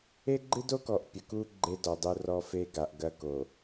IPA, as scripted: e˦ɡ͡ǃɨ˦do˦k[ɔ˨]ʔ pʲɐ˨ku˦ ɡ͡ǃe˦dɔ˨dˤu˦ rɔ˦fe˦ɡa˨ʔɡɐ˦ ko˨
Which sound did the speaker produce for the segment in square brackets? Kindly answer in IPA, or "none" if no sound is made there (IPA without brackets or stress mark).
ɔ˨